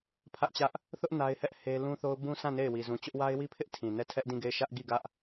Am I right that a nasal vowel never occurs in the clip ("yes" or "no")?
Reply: no